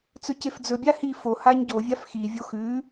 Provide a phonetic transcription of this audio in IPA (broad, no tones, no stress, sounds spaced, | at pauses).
t͡s ɵ c e f d͡z ɵ bʲ a h i f o h a ɲ ɟ o vʲ a f x i vʲ o x ʉ